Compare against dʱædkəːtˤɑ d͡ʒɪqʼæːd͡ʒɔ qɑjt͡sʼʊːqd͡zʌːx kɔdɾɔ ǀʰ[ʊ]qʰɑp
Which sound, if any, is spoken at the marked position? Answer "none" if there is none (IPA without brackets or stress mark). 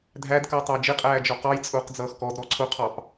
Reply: ʊ